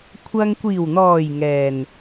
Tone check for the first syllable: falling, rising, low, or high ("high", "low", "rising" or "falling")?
low